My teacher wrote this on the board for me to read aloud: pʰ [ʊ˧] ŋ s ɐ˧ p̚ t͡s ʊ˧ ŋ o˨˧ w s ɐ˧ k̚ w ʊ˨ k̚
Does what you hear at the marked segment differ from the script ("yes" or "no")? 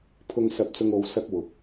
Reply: no